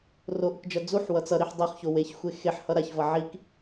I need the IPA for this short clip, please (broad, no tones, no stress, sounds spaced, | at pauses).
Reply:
r o ʔ ɯ k d͡ʒ ʌ d͡z u ħ w ʌ t͡s ʌ ɾ i ħ dˤ ɛ χ ç o w e ç xʷ e x e ħ h ʌ ɾ a ç v ʌ ʕ i k